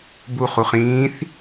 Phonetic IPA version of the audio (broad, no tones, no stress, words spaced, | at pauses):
bu χuχĩːθ